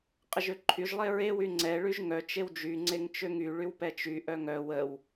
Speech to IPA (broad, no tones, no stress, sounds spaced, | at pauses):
qʼ ə ʒ ø ǃʰ y ʒ lˠ e ɹ e w y ŋ͡ǀ ɛ ɭ y ʒ ŋ œ t͡ʃ e w d͡ʒ y ŋ͡ǀ e ŋ t͡ʃ ø ŋ y ɭ y w p ɛ t͡ʃ y ʔ œ ŋ œ w ə w